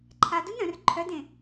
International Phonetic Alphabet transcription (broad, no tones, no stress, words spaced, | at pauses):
ǃʰad unœ̃r ǃʰœdẽ